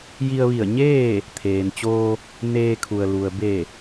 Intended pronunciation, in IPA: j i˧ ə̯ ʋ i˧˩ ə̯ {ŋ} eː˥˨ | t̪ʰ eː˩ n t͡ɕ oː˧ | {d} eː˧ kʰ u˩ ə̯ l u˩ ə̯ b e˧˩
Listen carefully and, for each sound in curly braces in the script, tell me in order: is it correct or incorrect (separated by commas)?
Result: incorrect, incorrect